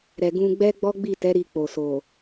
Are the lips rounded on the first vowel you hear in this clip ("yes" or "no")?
no